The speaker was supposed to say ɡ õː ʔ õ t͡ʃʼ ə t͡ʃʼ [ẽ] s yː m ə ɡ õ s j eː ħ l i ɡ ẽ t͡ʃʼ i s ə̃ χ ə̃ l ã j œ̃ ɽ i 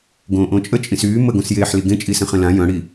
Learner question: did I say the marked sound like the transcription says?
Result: no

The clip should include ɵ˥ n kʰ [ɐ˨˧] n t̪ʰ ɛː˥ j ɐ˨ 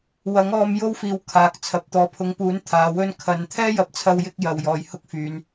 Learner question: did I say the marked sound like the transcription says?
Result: yes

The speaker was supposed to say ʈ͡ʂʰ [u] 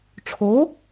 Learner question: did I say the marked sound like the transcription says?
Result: no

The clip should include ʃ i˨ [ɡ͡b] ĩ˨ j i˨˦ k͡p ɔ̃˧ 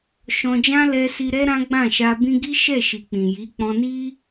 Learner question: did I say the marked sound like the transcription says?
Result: no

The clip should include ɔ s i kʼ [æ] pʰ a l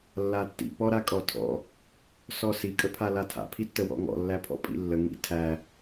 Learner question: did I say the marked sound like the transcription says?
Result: no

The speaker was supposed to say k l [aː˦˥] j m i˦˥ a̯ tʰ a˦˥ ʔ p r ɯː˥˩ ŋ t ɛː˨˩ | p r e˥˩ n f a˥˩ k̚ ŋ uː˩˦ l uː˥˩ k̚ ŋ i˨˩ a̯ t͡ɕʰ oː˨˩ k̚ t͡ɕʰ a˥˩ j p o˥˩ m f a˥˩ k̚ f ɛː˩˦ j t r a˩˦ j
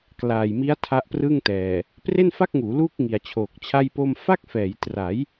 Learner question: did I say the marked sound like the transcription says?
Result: no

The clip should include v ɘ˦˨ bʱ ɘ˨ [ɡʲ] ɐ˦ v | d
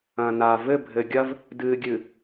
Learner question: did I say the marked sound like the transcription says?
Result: yes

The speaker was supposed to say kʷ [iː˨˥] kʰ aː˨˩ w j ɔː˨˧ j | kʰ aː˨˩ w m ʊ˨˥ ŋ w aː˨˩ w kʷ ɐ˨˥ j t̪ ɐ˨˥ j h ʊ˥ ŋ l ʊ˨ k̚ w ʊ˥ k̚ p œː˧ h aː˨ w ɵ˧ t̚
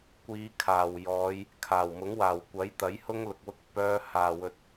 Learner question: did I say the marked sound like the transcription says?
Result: no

